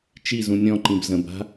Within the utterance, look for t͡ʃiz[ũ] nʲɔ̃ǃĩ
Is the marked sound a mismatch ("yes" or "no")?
no